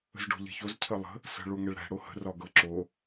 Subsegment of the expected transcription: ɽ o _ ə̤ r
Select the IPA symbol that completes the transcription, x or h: h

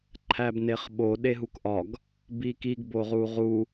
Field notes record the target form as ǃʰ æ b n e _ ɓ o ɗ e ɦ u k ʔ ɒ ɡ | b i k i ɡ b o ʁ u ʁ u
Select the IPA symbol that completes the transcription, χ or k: χ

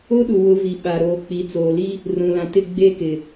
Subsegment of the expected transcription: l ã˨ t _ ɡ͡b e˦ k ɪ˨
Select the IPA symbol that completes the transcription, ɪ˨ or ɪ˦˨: ɪ˦˨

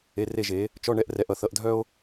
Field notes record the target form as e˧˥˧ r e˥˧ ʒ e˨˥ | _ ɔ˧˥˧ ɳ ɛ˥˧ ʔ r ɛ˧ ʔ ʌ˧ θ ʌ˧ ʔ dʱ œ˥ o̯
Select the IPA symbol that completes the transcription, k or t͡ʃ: t͡ʃ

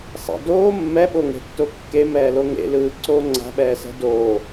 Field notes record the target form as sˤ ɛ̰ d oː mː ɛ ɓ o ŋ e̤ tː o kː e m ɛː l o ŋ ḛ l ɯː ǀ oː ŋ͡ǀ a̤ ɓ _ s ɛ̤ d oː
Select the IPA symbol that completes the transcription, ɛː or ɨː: ɛː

